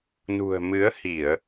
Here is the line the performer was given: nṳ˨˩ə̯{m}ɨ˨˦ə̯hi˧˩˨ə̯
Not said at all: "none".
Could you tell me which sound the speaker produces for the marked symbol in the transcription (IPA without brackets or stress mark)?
m